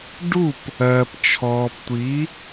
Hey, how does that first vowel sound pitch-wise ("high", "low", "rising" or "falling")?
falling